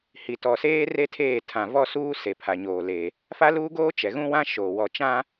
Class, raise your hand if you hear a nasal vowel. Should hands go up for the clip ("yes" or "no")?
yes